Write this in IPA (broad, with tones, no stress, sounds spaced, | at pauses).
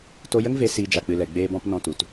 t o˧ j ə˦ ŋ v e˧ s iː˧ d͡ʒ a˨ k͡p ɨ˨ l ɛ˨ ɡ͡b eː˧ b ɔ̃˧ p n ɔ̃˧ t u˨ t